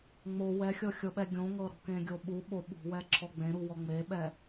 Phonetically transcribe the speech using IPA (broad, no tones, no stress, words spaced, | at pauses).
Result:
ŋ͡mo wɛxʲɤxʲɤɓɛ ɡʲõŋɤ ɾɔ̤kẽɡʲoɓu ɓoɓṳwɛ ǁʰɔɡ͡bẽɾuwɔ ŋ͡meɓɛ